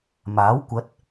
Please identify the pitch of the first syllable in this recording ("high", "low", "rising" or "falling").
rising